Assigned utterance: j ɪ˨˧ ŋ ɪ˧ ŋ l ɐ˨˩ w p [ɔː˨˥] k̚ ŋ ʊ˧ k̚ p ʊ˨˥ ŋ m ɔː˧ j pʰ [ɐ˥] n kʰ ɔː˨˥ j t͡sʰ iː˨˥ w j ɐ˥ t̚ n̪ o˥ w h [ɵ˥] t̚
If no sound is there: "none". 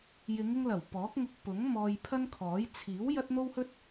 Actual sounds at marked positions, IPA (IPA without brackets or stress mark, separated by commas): ɔː˨˥, ɐ˥, ɵ˥